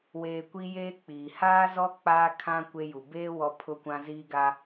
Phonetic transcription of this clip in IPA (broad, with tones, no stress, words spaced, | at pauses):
weː˨ kʷi˦jeː˦k͡piː˨ haː˦zɔ˦ k͡paː˦kʰã˦ kʷe˦ju˨ beː˦ wɔ˦pʰʊ˦kʷã˦ ziː˦ɡa˦